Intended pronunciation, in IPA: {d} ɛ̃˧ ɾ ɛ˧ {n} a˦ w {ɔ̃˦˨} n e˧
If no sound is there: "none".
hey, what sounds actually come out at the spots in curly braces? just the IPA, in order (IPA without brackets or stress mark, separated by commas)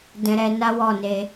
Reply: d, n, ɔ˦˨